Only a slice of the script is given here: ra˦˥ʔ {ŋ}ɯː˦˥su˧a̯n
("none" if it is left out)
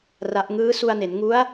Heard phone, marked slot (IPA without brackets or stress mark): ŋ